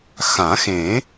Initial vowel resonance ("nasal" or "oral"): nasal